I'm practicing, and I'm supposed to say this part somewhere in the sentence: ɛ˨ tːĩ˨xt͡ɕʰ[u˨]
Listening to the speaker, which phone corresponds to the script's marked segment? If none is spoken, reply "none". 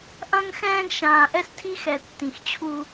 u˦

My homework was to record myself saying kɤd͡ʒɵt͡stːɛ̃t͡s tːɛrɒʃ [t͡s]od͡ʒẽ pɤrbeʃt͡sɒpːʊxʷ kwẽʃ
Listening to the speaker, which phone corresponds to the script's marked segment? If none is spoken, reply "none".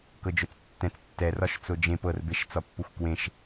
t͡s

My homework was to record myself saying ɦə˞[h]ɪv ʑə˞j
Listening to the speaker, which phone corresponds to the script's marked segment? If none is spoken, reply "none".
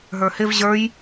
h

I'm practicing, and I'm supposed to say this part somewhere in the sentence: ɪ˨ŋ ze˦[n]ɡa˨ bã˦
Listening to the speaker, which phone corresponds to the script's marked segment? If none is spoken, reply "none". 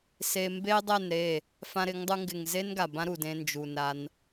n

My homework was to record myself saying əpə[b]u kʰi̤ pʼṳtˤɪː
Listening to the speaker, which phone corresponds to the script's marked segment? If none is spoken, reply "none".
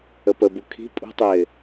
b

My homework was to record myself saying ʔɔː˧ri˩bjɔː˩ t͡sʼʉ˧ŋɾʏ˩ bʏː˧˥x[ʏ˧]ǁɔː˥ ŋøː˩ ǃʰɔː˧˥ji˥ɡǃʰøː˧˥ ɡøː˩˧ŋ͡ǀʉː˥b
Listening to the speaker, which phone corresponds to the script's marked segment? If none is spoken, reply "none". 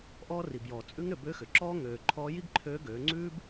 ʏ˩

